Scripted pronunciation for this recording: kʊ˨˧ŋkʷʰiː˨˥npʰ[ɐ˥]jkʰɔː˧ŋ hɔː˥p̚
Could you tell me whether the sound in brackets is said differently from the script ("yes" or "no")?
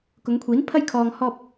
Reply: no